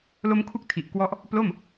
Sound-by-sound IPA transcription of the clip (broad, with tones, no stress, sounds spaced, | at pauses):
l o˦˥ m kʰ u˦˥ k̚ tʰ i˨˩ ʔ k w ɔ˦˥ ʔ | p l o˥˩ m